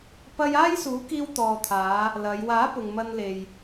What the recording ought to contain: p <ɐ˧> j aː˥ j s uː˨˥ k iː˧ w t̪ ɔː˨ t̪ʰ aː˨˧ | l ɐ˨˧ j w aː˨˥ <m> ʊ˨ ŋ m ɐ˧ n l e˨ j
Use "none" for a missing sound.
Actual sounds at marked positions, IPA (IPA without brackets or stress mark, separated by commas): ɐ˧, p